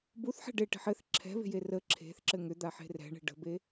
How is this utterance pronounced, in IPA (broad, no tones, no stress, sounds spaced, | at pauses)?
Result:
b u θ ħ ɛ̤ ɖ e ʈ e̤ ħ ɘ θ ǁʰ ɛ̤ β e̤ j e r ə ǁʰ e̤ θ ǁ ɘ ŋ ʏ d̪ a ħ e̤ r ɛ̤ ɳ e̤ ɖ ə̤ b e